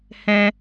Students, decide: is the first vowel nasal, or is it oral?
nasal